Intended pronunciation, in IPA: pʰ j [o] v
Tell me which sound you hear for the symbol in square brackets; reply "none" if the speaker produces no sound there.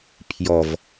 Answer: ɔ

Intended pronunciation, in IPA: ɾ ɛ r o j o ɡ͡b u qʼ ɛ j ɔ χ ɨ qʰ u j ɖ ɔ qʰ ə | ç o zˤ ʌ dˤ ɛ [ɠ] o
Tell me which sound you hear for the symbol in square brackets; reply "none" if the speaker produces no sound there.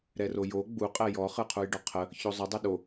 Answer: ɗ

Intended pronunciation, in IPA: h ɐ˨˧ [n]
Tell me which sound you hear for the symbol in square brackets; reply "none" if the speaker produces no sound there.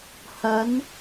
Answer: n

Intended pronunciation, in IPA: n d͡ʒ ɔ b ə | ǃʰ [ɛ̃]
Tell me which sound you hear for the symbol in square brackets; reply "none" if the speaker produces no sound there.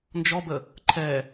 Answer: ɛ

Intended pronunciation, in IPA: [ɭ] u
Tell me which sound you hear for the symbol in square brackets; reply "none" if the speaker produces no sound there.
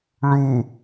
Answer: ɭ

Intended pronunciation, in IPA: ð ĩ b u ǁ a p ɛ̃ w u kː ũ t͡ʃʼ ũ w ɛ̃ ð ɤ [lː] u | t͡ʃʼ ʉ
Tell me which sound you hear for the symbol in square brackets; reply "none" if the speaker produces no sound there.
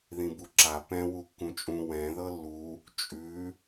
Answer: lː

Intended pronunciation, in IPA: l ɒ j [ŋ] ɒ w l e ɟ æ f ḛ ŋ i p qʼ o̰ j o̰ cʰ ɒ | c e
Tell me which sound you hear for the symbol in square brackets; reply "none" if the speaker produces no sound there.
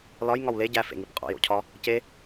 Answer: ŋ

